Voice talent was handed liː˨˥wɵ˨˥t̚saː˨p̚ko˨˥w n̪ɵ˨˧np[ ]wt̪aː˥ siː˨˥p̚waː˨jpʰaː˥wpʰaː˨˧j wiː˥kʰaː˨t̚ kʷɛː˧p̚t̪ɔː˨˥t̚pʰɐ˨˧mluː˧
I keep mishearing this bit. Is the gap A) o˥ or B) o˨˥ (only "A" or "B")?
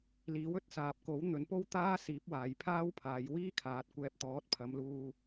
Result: A